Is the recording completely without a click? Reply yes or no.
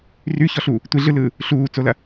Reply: yes